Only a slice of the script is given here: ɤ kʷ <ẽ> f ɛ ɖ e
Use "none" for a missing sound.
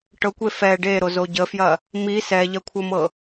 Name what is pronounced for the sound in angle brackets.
e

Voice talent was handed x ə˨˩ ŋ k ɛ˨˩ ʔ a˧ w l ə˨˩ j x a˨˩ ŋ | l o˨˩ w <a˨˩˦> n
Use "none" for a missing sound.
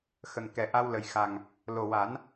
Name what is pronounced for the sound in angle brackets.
a˨˩˦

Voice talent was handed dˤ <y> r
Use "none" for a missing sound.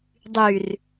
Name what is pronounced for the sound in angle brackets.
y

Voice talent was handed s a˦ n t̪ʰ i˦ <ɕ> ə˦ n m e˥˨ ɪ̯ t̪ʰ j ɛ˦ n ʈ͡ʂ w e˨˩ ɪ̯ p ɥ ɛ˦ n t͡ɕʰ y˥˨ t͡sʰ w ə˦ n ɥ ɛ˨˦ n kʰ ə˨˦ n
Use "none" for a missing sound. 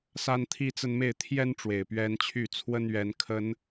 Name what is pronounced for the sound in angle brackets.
t͡s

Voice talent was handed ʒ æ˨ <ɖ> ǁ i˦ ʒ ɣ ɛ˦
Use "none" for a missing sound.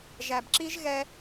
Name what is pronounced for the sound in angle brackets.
b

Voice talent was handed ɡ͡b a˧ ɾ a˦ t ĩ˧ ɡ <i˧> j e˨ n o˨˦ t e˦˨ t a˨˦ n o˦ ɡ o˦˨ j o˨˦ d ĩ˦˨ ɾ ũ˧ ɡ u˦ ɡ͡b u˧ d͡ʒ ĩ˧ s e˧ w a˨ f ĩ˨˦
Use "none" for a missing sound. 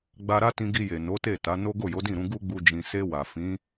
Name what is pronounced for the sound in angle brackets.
i˧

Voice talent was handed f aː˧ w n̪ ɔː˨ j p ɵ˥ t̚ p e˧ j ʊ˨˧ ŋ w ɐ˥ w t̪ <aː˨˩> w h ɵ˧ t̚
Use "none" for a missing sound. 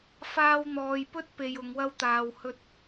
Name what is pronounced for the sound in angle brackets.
aː˧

